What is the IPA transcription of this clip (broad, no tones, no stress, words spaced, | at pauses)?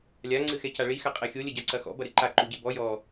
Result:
lʲa ŋ͡ǀɨxɛcaɭi xaqʼɛxʲo lʲɐɟaǀɐxɔ̰ bɐɾɨǃa ǃuɟebɔ jɔ